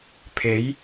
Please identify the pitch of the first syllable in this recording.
rising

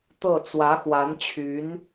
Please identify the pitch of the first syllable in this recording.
falling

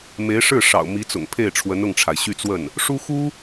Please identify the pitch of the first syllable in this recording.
rising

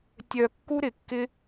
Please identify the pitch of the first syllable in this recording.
low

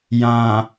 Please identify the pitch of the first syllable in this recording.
low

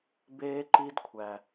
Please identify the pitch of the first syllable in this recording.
high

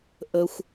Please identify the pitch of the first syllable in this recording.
high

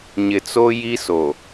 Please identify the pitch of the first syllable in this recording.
low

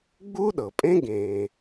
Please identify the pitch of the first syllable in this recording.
high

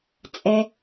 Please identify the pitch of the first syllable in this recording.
low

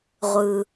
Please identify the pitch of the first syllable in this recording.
low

